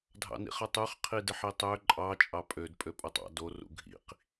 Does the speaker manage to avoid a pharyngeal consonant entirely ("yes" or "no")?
no